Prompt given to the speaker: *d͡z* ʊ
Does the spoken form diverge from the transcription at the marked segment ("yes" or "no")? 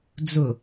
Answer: no